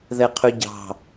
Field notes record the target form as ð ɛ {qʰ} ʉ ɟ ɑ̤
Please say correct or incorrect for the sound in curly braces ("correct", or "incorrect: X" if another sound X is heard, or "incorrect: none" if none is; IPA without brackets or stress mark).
correct